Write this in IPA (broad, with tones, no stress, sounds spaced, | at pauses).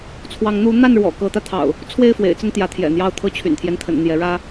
t͡sʰ w ɑ˨˦ ŋ n̪ u˨˦ n̪ a˥˨ n ɻ w ɔ̰˨˩ k ɤ˨˦ t̪ ä˧ t̪ʰ ɑ̰˨˩ ʊ̯ | t͡sʰ w e˥˨ ɪ̯ f w ḛ˨˩ ɪ̯ t͡s ə˥˨ n t̪ j ä˨˦ t̪ʰ j ɛ̰˨˩ n̪ j ɑ˥˨ ʊ̯ t̪ʰ ɤ˥˨ t͡ɕʰ y̰˨˩ n t̪ʰ j ɛ˦ n t̪ʰ ə̰˨˩ n n̪ j ɛ˨˦ ɻ ä˦